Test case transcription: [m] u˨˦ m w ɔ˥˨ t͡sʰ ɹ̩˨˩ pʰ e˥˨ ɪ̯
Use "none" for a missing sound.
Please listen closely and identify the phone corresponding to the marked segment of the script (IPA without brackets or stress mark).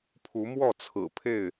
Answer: pʰ